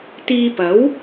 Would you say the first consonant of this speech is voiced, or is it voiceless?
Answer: voiceless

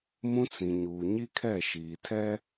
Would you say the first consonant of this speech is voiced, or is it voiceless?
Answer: voiced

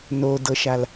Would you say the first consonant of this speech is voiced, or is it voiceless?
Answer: voiced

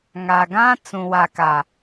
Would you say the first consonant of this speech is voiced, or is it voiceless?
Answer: voiced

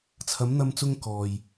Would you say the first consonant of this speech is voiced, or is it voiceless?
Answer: voiceless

